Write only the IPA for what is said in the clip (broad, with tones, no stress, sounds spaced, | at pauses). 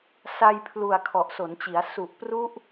s a˧ j pʰ l u˨˩ a̯ kʰ ɔ˨˩ ʔ s o˩˦ n t͡ɕ i˩˦ a̯ s u˨˩ ʔ p r u˦˥ ʔ